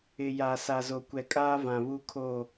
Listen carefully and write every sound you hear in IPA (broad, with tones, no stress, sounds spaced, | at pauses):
ɪ˨ j a˨ s a˨ z o˨ kʷ ɛ˨ kʼ aː˦ v ã˨ β u˦ kʰ o˦˨